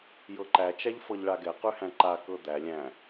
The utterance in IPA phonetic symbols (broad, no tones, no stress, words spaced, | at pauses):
jɤǃæ t͡ʃæʎfɤʎɭaɡɛ qʉhæ̃ǃa kɤd̪æ lʲæ̃